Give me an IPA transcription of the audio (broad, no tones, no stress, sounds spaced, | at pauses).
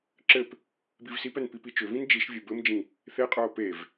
ǁ ɘ p | b i v s i p ɛ n p i p i t͡ʃ ʏ v ĩ n d͡ʒ i ʃ vʲ ɘ b ɘ m d͡ʒ ĩ | θ e qʼ ə˞ o̯ p e v